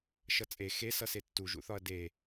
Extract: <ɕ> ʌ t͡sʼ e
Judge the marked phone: incorrect: ʃ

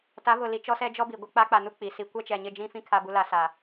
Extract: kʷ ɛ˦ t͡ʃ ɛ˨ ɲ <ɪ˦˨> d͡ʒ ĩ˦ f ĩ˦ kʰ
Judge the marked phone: correct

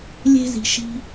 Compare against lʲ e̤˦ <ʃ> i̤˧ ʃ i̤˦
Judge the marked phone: incorrect: z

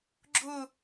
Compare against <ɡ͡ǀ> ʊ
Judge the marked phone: incorrect: ɡ͡ǁ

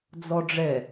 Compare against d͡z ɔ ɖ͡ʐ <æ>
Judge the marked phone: incorrect: ɛ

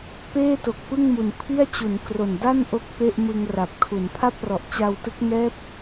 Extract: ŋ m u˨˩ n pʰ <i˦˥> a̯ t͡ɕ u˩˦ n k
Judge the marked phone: incorrect: i˥˩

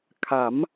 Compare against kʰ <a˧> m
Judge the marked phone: incorrect: a˩˦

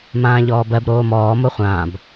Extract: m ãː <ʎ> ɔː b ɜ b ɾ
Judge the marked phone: correct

